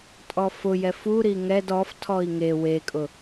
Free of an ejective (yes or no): no